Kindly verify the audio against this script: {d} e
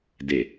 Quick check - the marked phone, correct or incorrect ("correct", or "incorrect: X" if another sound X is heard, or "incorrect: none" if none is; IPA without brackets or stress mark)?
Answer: correct